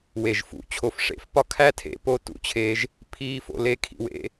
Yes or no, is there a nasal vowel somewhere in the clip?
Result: no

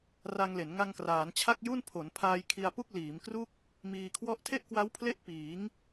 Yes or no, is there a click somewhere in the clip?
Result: no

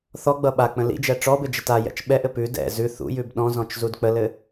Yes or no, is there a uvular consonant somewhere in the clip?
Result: no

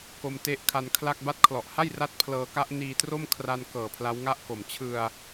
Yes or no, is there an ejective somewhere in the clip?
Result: no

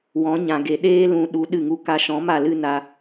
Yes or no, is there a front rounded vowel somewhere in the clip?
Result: no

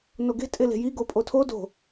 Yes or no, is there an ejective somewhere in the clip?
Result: yes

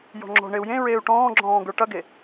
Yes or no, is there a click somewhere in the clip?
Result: yes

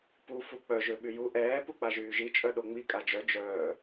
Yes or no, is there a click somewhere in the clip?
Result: no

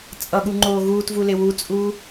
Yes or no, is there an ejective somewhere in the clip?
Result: yes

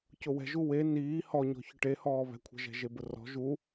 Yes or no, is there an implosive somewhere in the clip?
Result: no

